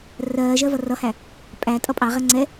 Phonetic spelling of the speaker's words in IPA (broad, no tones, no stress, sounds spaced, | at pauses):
r ɜː ʒ ɜ v ʌ r ʌ h æ | pʼ æ tʼ ʌ pʼ ɑ ʁ ɛ ŋ͡ǀ ɛ